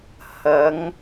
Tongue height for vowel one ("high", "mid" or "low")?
low